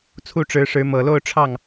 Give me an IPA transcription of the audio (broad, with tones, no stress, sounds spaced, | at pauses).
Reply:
t͡sʰ u˥˩ ʈ͡ʂ ɻ̩˧˥ ʂ ɻ̩˧˥ m ɤ˨˩ l o˥˧ ʊ̯ ʈ͡ʂʰ ɑ˥˩ ŋ